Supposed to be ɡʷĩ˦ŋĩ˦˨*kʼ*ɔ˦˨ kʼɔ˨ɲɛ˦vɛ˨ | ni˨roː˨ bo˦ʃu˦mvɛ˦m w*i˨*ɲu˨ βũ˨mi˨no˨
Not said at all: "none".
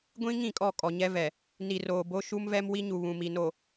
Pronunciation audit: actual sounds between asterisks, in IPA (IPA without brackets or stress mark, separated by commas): kʼ, i˦